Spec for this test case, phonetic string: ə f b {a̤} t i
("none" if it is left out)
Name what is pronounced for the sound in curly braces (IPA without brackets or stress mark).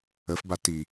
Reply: a